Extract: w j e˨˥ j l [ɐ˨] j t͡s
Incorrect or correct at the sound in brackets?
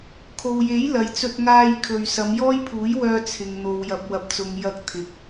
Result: correct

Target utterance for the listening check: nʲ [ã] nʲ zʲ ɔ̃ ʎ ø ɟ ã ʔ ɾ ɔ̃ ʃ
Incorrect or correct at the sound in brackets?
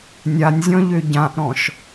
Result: incorrect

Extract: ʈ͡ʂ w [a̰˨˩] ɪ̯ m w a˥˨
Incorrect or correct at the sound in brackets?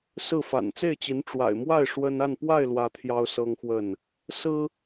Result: correct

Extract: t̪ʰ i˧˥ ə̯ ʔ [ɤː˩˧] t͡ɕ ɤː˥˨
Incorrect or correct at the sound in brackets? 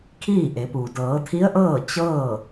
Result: incorrect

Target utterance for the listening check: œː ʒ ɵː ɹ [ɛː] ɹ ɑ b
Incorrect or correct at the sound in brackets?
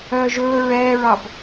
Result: correct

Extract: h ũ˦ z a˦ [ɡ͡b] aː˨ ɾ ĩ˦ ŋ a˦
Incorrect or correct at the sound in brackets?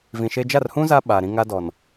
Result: incorrect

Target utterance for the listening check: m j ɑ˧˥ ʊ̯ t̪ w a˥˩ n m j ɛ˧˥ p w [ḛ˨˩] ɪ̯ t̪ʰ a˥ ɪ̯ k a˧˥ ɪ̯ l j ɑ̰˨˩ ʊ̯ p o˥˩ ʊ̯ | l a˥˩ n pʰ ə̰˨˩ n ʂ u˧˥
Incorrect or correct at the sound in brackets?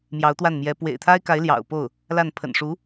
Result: correct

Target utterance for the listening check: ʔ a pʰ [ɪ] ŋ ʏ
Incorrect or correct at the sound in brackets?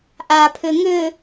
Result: incorrect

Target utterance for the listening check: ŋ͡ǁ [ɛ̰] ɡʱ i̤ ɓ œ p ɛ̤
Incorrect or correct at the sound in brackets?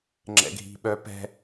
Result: correct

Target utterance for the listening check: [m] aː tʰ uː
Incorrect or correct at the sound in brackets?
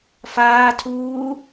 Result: incorrect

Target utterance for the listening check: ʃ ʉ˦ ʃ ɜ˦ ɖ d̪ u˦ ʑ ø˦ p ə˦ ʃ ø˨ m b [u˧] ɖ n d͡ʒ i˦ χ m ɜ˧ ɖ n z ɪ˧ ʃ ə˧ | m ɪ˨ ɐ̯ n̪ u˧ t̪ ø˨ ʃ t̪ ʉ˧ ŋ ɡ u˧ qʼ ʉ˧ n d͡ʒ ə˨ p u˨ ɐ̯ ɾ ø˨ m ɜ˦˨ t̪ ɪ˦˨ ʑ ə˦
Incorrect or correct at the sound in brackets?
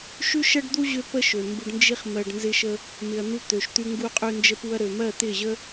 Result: correct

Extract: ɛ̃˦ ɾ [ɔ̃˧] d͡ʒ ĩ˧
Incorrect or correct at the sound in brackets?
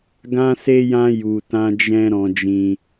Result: correct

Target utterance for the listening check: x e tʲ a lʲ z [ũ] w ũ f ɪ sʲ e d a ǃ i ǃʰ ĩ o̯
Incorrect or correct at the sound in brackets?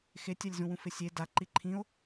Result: correct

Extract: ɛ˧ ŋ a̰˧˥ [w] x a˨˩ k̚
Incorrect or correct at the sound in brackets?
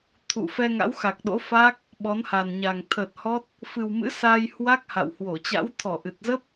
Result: correct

